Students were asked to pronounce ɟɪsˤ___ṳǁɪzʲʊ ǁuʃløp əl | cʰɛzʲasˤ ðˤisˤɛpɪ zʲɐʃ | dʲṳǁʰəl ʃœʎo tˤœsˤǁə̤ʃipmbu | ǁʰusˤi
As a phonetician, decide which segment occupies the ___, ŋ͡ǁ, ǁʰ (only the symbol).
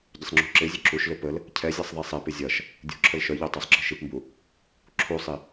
ŋ͡ǁ